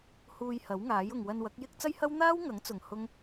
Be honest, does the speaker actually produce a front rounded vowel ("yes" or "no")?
no